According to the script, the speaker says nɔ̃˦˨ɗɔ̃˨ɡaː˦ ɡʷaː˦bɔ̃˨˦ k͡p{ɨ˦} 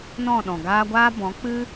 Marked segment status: correct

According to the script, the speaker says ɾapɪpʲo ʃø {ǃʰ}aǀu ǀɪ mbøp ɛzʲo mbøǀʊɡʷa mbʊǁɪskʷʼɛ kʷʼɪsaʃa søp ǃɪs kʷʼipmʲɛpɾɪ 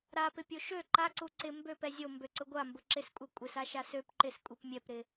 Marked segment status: incorrect: ǃ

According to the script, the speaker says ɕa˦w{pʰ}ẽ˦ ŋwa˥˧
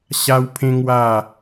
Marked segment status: correct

